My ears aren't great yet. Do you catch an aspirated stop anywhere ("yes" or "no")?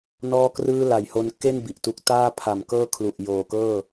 yes